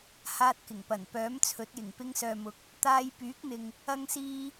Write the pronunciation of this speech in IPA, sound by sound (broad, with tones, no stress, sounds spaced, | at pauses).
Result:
h aː˧ t̚ k ɪ˨˩ ŋ p ɐ˨˩ n p œː˨˥ m t͡sʰ ɵ˨˥ t̚ j ɪ˨˩ ŋ p ɪ˧ ŋ s œː˨ m ʊ˨˥ k̚ | t̪ aː˧ j p yː˨˥ k̚ n̪ ɪ˨ ŋ | ɐ˥ ŋ s iː˥